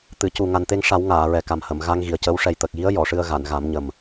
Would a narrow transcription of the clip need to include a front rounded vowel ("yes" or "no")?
no